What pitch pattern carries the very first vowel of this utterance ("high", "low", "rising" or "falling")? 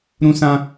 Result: high